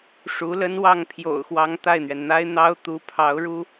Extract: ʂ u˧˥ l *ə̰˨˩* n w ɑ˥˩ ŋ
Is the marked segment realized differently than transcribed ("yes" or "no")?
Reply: yes